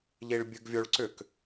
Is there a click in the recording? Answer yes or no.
yes